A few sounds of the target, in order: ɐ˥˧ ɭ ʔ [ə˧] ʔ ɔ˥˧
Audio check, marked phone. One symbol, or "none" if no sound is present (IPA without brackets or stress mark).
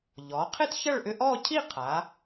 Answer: ʏ˧